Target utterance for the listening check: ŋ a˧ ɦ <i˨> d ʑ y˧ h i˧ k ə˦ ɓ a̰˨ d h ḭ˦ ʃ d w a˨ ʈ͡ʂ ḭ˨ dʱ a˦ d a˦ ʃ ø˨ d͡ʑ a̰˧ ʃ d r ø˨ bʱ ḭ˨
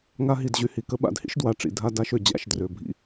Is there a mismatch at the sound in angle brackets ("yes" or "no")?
no